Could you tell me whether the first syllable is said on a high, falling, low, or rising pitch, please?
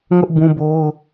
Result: high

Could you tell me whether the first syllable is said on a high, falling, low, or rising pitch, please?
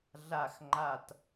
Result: low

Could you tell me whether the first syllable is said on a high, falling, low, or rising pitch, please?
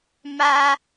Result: high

